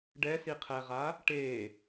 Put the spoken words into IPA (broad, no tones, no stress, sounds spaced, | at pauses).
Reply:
ɖ ɛ s i qʰ ɛ ʁ a | ʈ e